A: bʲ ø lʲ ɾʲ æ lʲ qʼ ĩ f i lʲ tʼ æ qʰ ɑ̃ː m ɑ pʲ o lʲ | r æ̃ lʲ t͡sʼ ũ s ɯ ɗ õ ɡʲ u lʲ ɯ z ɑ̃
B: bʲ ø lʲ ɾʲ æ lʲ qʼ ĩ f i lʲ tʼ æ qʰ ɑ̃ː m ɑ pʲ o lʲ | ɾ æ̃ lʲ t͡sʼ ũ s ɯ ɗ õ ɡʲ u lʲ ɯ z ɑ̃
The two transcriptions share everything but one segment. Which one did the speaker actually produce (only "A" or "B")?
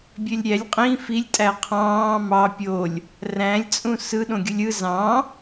A